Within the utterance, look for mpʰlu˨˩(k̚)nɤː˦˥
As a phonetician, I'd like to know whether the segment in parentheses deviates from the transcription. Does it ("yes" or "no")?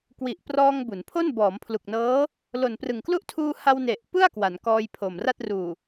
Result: no